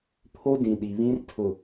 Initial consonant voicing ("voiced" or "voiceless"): voiceless